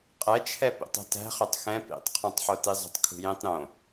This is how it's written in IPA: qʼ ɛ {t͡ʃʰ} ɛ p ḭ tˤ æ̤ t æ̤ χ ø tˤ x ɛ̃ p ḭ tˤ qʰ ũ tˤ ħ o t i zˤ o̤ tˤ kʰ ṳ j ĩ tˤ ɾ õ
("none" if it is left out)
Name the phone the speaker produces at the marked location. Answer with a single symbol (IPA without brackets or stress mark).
t͡ʃʰ